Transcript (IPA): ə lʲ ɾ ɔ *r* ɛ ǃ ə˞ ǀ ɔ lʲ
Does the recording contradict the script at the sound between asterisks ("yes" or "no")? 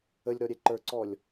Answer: yes